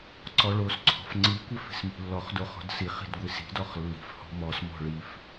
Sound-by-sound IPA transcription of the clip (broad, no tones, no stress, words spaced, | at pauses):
ǀɔɭosǀʰɔ̤f ŋ͡ǀikʷɪ fi̤smi̤lːɔχdo χɔ̤dsiχi̤d ɡʷisi̤dɔχ lːi̤fhɔ̤ mɔsmɔ̤ ɭif